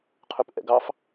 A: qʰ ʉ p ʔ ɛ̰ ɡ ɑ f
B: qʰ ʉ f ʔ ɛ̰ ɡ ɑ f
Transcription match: A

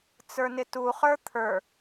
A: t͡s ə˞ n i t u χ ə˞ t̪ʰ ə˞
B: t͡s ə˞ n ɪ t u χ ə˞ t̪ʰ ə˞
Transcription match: B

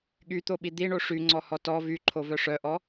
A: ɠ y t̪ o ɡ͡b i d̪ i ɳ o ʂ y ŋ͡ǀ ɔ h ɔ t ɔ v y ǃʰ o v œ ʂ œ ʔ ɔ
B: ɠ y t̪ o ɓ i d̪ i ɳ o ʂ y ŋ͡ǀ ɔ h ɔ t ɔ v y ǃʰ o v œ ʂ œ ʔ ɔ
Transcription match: B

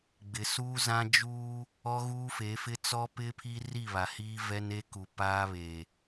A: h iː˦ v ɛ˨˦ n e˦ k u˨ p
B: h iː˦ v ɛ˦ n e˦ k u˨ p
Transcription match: B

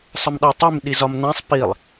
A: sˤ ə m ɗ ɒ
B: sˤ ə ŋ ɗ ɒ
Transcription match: A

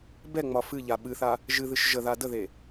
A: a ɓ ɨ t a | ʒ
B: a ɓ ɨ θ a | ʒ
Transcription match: B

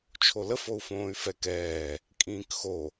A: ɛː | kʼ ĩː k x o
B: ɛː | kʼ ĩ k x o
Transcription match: A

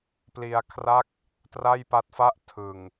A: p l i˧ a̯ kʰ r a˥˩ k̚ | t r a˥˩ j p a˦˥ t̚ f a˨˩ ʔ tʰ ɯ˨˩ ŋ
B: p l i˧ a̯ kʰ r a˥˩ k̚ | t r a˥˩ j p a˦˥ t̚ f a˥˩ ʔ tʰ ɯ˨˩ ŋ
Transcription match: B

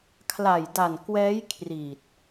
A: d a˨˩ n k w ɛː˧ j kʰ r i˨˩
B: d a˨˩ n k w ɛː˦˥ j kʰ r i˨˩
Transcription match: B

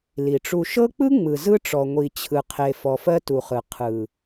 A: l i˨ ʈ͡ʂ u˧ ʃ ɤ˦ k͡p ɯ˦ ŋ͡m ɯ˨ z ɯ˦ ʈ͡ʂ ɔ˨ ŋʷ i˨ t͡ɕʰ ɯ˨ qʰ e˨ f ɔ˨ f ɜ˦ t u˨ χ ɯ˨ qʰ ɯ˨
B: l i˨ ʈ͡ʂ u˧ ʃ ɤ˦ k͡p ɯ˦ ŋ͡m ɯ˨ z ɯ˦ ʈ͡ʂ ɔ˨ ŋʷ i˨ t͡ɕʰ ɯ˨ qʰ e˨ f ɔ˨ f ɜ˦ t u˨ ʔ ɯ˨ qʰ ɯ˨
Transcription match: A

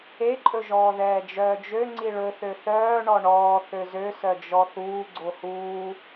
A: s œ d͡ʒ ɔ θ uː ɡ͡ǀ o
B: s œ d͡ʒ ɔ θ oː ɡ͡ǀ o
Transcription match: A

